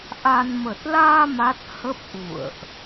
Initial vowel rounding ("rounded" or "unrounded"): unrounded